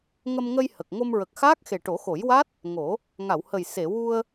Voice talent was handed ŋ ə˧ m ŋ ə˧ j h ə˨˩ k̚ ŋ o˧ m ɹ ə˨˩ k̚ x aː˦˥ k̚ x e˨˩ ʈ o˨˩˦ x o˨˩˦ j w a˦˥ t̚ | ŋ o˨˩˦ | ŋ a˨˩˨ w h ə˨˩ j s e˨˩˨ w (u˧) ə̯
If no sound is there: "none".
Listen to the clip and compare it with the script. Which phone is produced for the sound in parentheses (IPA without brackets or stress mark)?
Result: u˧